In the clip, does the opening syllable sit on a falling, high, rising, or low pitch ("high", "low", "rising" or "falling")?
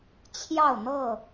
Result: falling